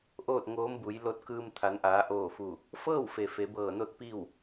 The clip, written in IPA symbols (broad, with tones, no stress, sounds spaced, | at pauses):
ʔ oː˥˨ t̚ ŋ oː˧˥ m b u˩˧ j l o˧ t̚ k ɯː˧ m t̪ʰ a˩˧ n ʔ aː˩˧ ʔ oː˧˩ f u˧˩ | f ɤː˥˨ w f e˩ f e˩˧ b ɤː˧˩ n o˥˨ t̚ p i˥˨ w